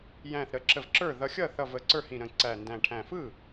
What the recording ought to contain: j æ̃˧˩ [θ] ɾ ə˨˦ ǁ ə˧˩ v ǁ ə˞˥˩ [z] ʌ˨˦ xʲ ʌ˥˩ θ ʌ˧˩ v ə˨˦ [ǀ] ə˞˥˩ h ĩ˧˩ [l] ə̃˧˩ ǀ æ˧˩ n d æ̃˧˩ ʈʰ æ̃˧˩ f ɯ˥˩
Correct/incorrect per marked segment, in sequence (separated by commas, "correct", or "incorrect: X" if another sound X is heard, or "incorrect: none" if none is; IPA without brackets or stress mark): correct, incorrect: ð, correct, incorrect: ɾ